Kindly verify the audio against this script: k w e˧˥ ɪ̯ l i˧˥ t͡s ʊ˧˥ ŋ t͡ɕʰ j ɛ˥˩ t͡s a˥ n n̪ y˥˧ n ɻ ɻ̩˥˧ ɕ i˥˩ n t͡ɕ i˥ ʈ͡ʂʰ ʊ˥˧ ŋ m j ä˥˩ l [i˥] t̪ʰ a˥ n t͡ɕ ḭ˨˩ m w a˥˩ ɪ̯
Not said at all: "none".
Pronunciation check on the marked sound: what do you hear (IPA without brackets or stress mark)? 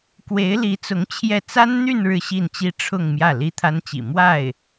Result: i˥